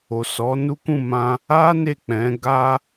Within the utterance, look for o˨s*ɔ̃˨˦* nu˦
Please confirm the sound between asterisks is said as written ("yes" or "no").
no